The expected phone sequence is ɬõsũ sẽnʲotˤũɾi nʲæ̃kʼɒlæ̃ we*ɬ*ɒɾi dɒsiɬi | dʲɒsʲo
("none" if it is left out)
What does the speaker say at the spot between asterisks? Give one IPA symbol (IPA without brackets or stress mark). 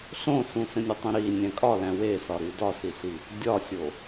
s